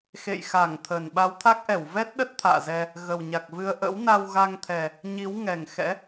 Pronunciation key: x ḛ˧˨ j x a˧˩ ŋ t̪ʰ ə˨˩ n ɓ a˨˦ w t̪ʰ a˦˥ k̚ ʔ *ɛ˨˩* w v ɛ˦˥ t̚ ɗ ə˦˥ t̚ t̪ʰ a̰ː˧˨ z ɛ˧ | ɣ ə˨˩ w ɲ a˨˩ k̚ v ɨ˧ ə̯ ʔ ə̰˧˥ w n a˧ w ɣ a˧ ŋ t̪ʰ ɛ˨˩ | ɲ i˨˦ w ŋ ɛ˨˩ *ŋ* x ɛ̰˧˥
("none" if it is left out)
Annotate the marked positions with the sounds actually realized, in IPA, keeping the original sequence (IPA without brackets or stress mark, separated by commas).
ɛ˧˩, ŋ